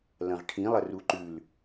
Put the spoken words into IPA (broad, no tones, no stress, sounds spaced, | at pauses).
l ɐ̃ ʁ ʈʰ ĩ lˠ ɐ r u ǃ ʉ l